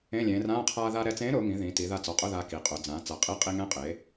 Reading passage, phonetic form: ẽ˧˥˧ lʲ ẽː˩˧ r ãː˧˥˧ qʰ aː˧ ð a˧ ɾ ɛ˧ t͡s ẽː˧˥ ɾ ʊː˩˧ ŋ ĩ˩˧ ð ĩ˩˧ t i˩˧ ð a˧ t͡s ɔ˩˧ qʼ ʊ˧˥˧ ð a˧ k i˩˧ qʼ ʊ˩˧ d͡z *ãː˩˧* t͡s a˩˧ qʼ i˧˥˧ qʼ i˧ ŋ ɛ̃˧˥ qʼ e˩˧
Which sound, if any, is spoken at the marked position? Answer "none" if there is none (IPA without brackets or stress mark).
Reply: ãː˩˧